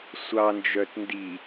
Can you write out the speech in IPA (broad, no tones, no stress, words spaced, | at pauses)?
sʷɑnd͡ʒœt ndi